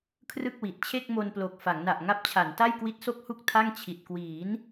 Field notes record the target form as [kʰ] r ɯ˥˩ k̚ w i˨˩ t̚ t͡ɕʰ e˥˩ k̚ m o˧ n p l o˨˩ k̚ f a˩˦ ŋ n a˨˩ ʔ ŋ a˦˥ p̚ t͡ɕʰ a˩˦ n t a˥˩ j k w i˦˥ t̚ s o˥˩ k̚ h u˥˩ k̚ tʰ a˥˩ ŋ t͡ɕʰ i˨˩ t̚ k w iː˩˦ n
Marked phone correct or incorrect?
correct